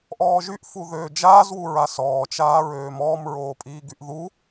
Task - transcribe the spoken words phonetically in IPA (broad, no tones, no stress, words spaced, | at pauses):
ʔɔːʒyʔfu ðøːd͡ʒaːzwuɹa sɔːt͡ʃaːɹøːm ɔːmɹoːpʼiːɡyʔ ðu